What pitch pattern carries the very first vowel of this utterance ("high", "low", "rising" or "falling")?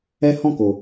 high